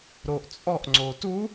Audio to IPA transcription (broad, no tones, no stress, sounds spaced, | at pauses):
ɾ o ʔ t͡sʼ ɔ ʔ ŋ͡ǀ o t u